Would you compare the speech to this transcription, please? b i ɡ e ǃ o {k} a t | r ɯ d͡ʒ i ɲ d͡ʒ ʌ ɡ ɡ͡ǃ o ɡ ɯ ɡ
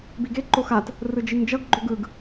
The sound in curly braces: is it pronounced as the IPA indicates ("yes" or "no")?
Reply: no